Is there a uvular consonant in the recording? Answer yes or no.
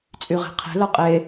yes